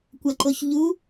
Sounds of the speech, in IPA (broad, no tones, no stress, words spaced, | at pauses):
kʷɐǃoçʎu